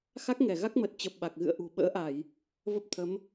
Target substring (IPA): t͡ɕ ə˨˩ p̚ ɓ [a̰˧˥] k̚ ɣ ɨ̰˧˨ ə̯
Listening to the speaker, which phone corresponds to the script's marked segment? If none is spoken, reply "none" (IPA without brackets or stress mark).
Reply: a˨˩